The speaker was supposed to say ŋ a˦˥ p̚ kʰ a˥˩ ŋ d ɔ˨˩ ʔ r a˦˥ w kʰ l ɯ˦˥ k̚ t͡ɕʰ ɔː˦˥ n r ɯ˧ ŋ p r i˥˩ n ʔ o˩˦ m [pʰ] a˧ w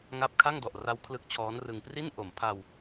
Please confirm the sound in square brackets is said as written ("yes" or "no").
yes